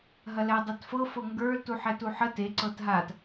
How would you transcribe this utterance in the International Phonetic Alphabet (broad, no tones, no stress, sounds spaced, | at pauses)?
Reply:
ɦ ɐ l ɛ dˤ a t f ɤ f ɤ ŋ ɡ ə˞ l t u ħ ɛ t u ħ ə t e ǀ ɤ t ɦ a t